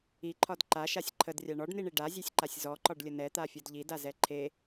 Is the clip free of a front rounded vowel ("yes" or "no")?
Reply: yes